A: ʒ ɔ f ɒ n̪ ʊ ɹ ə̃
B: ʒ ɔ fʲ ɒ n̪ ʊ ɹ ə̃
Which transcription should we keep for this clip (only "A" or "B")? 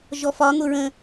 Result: A